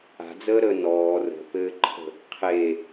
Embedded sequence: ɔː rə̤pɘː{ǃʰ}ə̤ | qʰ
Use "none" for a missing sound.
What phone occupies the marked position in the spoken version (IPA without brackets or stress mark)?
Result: ǃʰ